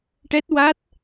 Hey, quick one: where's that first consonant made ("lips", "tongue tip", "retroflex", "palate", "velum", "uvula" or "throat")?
retroflex